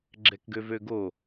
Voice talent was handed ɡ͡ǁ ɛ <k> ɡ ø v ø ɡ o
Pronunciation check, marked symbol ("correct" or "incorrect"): correct